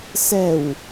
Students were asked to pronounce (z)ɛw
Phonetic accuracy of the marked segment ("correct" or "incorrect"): incorrect